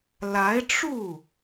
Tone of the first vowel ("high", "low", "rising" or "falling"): rising